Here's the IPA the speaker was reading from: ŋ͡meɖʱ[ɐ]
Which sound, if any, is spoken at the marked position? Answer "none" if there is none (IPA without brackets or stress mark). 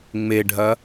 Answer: ɐ